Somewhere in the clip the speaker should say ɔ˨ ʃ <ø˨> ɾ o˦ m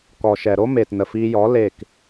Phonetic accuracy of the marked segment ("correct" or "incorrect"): incorrect